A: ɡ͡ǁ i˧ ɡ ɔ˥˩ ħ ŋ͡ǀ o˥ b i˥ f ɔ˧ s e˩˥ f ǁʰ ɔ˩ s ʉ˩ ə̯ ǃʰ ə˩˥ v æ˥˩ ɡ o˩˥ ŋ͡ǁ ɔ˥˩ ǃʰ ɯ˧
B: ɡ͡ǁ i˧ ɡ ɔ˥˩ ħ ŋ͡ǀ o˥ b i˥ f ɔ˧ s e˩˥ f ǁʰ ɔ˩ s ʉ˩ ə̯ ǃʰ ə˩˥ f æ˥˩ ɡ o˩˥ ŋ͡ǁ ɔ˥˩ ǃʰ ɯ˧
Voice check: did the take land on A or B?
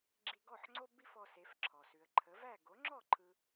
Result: A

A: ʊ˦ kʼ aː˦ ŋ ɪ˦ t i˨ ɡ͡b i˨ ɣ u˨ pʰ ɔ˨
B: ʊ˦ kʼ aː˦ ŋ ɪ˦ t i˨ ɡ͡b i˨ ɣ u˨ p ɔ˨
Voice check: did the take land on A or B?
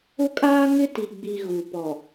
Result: B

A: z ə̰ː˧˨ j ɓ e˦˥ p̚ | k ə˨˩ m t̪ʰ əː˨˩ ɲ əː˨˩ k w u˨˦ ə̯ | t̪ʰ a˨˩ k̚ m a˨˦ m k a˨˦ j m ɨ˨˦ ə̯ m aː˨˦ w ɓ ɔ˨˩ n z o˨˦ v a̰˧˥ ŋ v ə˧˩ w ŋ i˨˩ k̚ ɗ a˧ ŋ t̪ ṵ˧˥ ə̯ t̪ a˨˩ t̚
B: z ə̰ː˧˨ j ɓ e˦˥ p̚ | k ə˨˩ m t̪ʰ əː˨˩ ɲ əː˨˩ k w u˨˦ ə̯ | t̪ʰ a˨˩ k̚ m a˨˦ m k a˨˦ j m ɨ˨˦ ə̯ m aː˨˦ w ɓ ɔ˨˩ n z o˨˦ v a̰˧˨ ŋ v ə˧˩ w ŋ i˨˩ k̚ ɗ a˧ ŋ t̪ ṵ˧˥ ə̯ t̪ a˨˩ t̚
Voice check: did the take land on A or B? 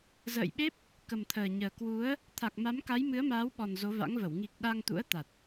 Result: A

